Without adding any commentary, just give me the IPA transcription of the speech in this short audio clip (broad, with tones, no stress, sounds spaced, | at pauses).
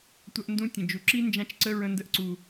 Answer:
tʷ ɐ˦ ʔ n d ũ˦ tʲ ə̃˨ d͡ʒ u˨ ǁ i˦ n d͡ʒ ã˦ t͡ʃ ǀ ə˦ ɹ ə̃˦ n d ə˦ ʔ ǀ u˧